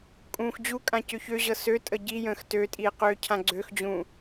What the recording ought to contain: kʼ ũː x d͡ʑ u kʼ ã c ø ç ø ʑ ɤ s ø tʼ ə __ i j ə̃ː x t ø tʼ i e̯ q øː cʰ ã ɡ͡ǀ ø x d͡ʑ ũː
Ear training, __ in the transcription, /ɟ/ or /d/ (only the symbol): ɟ